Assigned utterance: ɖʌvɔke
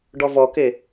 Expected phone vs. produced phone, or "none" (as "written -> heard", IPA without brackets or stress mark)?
ʌ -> ɔ